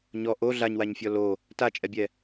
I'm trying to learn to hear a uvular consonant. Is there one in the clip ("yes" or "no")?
no